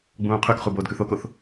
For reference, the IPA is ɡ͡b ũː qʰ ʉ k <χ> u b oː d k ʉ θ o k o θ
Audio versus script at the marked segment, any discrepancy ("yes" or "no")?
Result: no